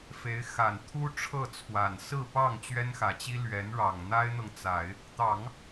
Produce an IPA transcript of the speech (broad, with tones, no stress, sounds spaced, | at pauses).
f e˧˥ ɪ̯ x a˨˩ n t̪ʰ u˥ ʈ͡ʂʰ ɤ˥˩ t͡sʰ w a˨˩ n s ɹ̩˥˧ p ɑ˥˩ ŋ t͡ɕ ɥ ɛ˥ n x ä˨˩ t͡ɕ i˥ l ɥ ɛ˧˥ n ɻ ɑ˨˩ ŋ n̪ a˥ ɪ̯ n̪ ɤ˨ ŋ t͡s a˨˩˦ ɪ̯ | t̪ ɑ˨˩˦ ŋ